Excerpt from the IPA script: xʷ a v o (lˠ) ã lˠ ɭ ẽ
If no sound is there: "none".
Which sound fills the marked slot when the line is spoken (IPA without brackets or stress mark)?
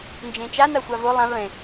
lˠ